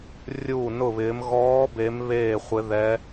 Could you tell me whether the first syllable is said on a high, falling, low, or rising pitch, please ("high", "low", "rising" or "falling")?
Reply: falling